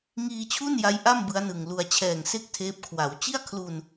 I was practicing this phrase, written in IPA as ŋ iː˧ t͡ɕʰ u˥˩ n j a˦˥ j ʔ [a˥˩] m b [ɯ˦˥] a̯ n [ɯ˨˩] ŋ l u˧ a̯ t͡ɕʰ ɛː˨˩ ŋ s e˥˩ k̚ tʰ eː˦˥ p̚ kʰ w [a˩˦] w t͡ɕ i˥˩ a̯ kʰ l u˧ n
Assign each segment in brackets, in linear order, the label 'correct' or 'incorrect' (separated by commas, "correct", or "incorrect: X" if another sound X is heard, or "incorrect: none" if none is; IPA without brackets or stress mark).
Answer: correct, correct, correct, correct